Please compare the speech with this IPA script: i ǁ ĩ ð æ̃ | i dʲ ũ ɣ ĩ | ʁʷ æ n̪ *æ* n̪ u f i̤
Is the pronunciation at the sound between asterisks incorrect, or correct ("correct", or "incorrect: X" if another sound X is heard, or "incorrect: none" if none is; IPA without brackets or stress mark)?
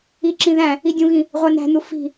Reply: incorrect: æ̤